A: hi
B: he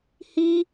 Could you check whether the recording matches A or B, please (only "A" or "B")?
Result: A